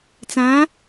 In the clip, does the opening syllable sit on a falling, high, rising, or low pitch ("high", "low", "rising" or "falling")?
rising